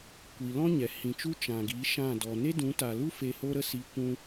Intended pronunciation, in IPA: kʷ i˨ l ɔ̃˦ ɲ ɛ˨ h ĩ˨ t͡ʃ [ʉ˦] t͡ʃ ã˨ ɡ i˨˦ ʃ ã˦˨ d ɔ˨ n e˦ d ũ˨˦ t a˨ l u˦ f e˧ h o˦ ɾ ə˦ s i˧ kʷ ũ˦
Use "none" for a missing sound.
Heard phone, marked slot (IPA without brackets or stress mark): u˦